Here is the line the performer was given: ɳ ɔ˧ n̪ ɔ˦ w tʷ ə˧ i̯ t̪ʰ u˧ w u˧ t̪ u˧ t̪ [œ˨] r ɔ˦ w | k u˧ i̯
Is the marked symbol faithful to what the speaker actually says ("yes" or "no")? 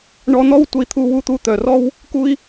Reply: yes